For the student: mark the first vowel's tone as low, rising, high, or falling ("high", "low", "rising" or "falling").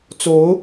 rising